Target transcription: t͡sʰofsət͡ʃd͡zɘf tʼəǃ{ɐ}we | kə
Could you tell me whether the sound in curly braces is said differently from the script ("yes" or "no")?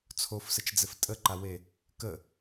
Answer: yes